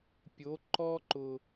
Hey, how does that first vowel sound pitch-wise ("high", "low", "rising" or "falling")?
rising